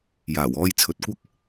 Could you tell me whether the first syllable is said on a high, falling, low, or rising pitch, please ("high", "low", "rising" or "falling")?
low